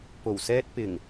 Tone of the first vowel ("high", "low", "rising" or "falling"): low